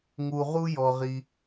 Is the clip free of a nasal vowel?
yes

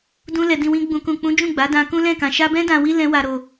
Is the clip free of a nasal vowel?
no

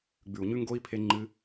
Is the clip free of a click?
no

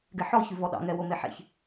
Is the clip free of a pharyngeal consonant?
no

